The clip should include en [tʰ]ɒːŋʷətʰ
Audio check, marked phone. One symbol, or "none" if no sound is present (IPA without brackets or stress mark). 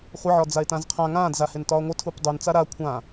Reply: t